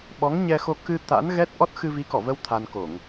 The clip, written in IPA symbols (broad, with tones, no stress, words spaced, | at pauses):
ɓɔ˨˦ŋɲɛ˧xo˧ kɨ˧ t̪a̰˧˥nɣɛ˦˥t̚ ʔɔ˦˥t̚ xɨ˧vi˨˦kɔ˧˩və˧w t̪ʰa˧nko˧˩˨ŋ